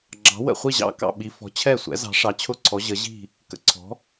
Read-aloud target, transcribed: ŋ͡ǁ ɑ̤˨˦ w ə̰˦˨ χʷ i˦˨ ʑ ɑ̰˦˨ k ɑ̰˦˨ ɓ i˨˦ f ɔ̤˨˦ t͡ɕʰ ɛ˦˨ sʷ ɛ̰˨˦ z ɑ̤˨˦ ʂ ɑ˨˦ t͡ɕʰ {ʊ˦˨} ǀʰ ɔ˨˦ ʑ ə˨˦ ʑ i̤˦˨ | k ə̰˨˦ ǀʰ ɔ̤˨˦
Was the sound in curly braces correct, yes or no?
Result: yes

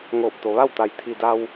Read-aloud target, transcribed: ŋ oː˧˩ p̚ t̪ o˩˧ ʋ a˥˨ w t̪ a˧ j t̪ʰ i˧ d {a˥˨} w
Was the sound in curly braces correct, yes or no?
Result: no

